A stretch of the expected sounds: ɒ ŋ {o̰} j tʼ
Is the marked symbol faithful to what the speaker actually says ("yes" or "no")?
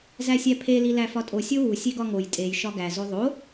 no